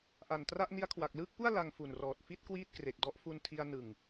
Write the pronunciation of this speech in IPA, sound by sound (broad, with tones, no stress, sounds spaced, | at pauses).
ʔ a˨˩ n t r a˥˩ ʔ n i˧ a̯ kʰ w a˨˩ k̚ l ɯː˥˩ k̚ p u˥˩ a̯ l a˧ ŋ f u˨˩ n r ɔː˨˩ t̚ f i˥˩ t̚ k w iː˥˩ t̚ k r e˨˩ k̚ d ɔ˦˥ ʔ f u˧ n tʰ i˧ a̯ n ɯ˨˩ ŋ